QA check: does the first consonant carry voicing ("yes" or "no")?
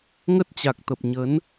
yes